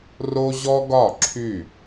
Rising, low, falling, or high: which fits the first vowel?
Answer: high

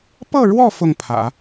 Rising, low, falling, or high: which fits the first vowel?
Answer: falling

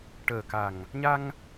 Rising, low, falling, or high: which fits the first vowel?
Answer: low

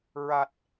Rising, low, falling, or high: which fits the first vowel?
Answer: low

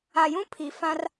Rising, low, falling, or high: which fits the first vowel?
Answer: low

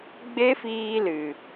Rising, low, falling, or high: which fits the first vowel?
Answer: high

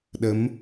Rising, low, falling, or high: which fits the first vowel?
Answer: rising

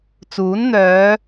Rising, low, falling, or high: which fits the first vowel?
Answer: rising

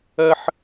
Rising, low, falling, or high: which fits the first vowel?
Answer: high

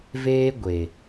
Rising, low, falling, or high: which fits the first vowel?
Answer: high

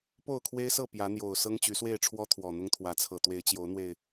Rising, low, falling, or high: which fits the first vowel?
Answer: falling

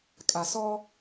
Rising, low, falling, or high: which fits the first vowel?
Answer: low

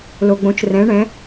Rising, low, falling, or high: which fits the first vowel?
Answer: low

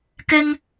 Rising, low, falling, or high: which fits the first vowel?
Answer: high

